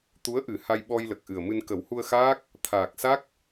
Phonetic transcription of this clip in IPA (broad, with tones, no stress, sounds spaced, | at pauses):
t̪ u˧˥ ə̯ ʔ ɨ˨˩˦ h a˧ j ɓ ɔ˧ j l ə˨˩ k̚ ʔ ɨ˨˩ ə̯ m ɨ˧ n k ə˨˩˦ w h u˧ ə̯ x aː˦˥ k̚ | t̪ʰ aː˨˩ k̚ s a˦˥ k̚